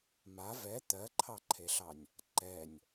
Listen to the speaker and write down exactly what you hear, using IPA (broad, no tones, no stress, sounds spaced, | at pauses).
m a v ɛ t̪ ɜ ǃʰ ɑ ǃʰ e ɬ ɑ nʲ | ǃ ɛ nʲ